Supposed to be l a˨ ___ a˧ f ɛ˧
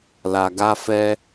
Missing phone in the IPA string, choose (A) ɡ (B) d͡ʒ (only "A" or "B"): A